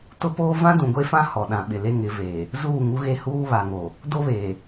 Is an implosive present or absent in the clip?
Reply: present